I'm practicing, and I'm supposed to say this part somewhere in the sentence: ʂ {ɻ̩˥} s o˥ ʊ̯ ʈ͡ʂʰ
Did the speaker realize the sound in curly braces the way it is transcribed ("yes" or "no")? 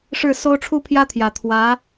no